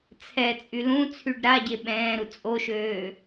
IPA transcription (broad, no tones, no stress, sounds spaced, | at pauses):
t͡sʰ ɛ t͡sʼ y l ũ t͡sʰ y ɖ ɾ a ɟ e ɓ ɛ̃ː ɾ u t͡sʼ o ʃ øː